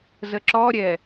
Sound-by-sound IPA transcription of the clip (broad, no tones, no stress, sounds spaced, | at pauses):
z ə ǁ ɔ ɾʲ ɛ